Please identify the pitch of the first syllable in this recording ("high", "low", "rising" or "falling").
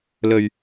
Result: low